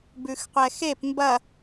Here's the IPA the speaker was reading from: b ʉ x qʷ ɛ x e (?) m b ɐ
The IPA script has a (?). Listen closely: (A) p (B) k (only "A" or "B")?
A